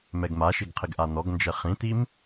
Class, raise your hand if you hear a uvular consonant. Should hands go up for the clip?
yes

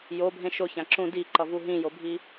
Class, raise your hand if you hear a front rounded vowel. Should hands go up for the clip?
no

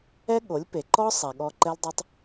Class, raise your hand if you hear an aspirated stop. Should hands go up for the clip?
no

